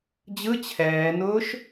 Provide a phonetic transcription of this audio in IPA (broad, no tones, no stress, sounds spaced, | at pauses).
d͡ʑ ɯ t͡ɕʰ ɛː n ʊː ʃ